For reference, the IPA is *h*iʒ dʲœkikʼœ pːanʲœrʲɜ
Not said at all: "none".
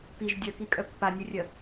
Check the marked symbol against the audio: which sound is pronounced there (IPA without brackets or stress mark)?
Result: p